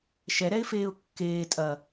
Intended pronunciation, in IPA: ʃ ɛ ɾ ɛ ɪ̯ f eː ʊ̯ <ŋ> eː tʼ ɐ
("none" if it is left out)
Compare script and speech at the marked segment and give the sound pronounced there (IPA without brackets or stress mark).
kː